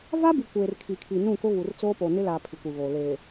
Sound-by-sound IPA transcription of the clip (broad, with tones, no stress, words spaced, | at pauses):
va˦bi˨ kʷeː˨r kʰi˨kʰi˨nũ˦˨kʊ˦ βu˨rt͡soː˦po˨ nɪ˦la˨ pʰi˨kʷi˨βoː˨ leː˨